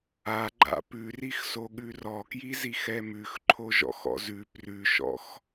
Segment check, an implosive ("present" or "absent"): present